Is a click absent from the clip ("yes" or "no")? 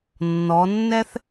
yes